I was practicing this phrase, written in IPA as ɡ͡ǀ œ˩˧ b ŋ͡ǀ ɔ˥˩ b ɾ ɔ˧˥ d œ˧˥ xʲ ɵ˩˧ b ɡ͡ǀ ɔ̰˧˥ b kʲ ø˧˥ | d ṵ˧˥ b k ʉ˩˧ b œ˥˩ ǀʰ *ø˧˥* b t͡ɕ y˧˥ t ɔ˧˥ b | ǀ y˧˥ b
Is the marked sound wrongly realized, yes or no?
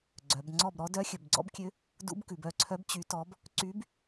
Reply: yes